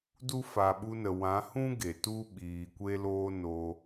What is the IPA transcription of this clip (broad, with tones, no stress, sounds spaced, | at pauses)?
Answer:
d u˦ f a˨ ɓ u˧ n ə˨ w ã˨˦ h ũ˦ ɡ e˨ t u˦ ɓ iː˨ kʷ e˦ l oː˦ n oː˧